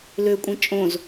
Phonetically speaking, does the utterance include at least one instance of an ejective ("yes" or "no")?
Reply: yes